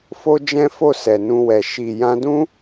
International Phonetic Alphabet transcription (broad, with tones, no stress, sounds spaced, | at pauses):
f o˦ d͡ʒ ɛ̃˦ f o˦˨ s ɛ˨ n ũ˧ w ɛ˨ ʃ i˨ j ã˧ d ũ˦